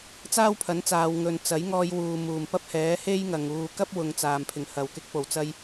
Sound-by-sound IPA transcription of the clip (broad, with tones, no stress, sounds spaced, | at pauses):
t͡s aː˥ w pʰ ɐ˨˥ n t͡s aː˨ w ŋ ɵ˨ n t͡s ɐ˨˥ j ŋ ɔː˧ j w uː˨ m uː˨˩ m p ɐ˥ p̚ h ɛː˨˥ h e˥ j ŋ ɐ˨ ŋ uː˨˧ k ɐ˥ p̚ w ʊ˨ ŋ t͡s aː˨˩ m pʰ ɪ˨˩ ŋ h ɐ˨˩ w k ɪ˧ k̚ p o˨˩ w t͡s ɐ˧ j